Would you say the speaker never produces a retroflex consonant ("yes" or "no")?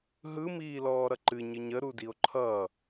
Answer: yes